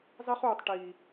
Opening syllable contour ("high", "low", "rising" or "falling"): high